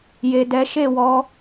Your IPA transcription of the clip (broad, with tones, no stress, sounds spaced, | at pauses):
j e˨ d ɛ˨˦ ʃ e˦˨ w ɔ˧